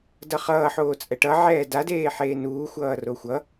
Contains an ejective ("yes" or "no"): yes